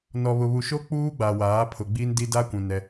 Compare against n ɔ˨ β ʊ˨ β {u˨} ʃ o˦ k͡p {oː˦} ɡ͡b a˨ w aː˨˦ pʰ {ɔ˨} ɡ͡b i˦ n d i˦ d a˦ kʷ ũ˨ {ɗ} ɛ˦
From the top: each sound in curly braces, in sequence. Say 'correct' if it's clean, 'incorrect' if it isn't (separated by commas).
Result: correct, incorrect, incorrect, incorrect